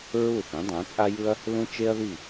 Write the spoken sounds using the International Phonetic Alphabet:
ɹ u˥˩ θ ẽ˩˥ dˤ ã˩˥ t͡sʼ a˥ j ɯ˥ ɐ̯ | l ũ˥ t͡ʃ e˥ ɐ̯ ð i˥˩

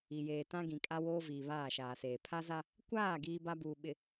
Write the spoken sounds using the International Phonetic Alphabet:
i˨ j eː˨ t ã˦ ɡ ĩ˨ kʼ a˦ w oː˦ v iː˨ β aː˦˨ ʃ aː˨ s eː˨ pʰ a˦ z a˦ | kʷ aː˦˨ ɡ iː˦ b a˦ b uː˨ ɓ ɪ˨

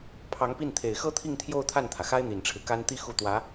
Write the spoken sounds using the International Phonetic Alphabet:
pʰ ɑ˧˥ ŋ p i˥˩ n t̪ʰ e˨˩ ɪ̯ x ɤ˥ t̪ʰ i˥˧ ŋ t̪ʰ j o˥˧ ʊ̯ t̪ʰ a˥˩ n t̪ʰ ä˩ x a˥ ɪ̯ n̪ i˨˩ n ʈ͡ʂʰ ɻ̩˦ k a˥ n t̪ i˥˧ x u˥˩ t̪ w ä˧˥

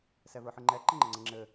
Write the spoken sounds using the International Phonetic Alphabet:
s ɛ v ə˞ ħ ɯ ŋ͡ǃ ɛ ǃ ɘ ŋ͡ǃ ə ŋ͡ǀ ə ŋ͡ǁ ɘ

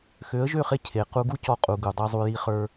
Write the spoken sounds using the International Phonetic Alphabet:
x ø˨˦ ə̯ ʒ ø˦˨ χ e˧ cʰ e˨ q u˧ ɡ u˦ c ɔ˧ qʼ u˨ ɡ u˨ dˤ i˧ zˤ u˧ j i˧ χ ə˞˧

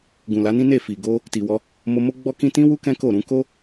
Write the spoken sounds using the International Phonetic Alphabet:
ɡ ũ˨ l a˨˦ n ĩ˦ n e˦˨ f i˨ ɡ o˧ | t i˨ w ɔ˧ | m o˧ m o˦ ɡ͡b ɔ˦ k ĩ˦ t ĩ˦ w u˦ k ɛ̃˦ k o˦˨ ɾ ũ˧ k o˦

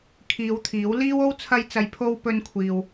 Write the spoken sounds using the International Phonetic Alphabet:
kʰ iː˨˧ w t̪ʰ iː˨˥ w l iː˥ w o˥ w t͡sʰ ɐ˧ j t͡s ɐ˨˧ j pʰ o˧ w p ɵ˧ n kʷʰ iː˨ w

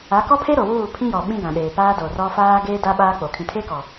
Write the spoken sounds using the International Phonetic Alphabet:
a˨˦ k ɔ˦ pʰ e˦ ɾ o˨ w uː˦˨ pʰ ĩ˦ j ɔ˨ ɓ ĩ˦ ɡ ã˨ ɗ eː˨ p aː˦ d o˨ r ɔ˦ f aː˦ ɡ eː˦ d a˦ ɓ aː˦ k͡p o˨ kʰ ĩ˨ tʰ e˦ k ɔ˨

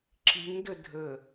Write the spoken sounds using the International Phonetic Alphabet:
ǁ i ŋ d ə dʱ ə

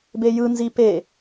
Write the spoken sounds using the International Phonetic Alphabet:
b e j ɯ n z i p e

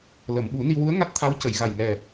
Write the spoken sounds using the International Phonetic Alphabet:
l ə˨˩˨ m ɓ u˨˩˦ n i˧ w u˧˥ ə̯ ŋ a˦˥ t̚ t̪ʰ a˧˥ w c ə˨˩˨ j ɣ a˨˩ j ŋ ɛ˨˩

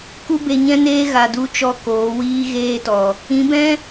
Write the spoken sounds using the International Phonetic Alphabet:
k u˦ b e˧ ɲ ɛ̃˦ n eː˦ ɣ a˨ d u˧ t͡ʃ ɔ˧ k oː˨˦ w iː˦ ɣ eː˦ t ɔ˨ | ĩ˨˦ b ɛ̃˦

